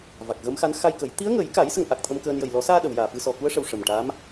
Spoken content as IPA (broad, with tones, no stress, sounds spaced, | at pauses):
v a˨˩ k̚ ɣ ə˧˥ m x a˧˥ n x a˧ j k ə˨˩˦ j t̪ i˧˥ ə̯ ŋ ə˨˩˦ j k a˨˩˦ j s ə˧ ŋ ʔ a˨˩ k̚ t̪ʰ ə˧ m k əː˧ n j ə˨˩ j l ɔ˨˩˦ s aː˧ ɗ ə˨˩˨ w j aː˨˩ f ɨ˧ s ɔ˨˩ k u˧˥ ə̯ ʂ ə˨˩ w ʂ ə˨˩ m ʈ a˧˥ m